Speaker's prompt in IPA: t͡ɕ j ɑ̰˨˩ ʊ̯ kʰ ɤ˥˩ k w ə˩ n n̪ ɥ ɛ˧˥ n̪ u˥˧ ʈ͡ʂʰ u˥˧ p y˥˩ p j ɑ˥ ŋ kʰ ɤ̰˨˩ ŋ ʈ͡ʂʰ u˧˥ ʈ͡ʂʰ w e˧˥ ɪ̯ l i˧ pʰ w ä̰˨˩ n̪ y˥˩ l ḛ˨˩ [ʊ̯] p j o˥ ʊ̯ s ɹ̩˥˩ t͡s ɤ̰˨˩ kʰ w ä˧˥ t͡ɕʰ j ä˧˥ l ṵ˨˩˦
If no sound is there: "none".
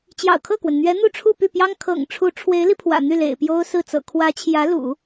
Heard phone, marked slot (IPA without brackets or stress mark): ɪ̯